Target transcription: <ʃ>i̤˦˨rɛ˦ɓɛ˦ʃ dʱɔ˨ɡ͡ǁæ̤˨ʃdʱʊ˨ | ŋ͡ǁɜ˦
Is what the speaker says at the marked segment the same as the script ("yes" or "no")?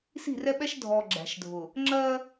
no